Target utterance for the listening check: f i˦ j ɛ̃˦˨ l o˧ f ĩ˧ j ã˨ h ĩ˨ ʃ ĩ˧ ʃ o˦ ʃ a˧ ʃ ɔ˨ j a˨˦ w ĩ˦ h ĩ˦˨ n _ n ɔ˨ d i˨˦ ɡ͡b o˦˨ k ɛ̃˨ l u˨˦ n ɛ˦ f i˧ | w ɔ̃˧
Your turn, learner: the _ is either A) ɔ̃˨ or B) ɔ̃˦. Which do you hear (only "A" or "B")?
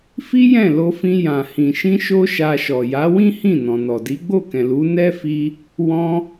A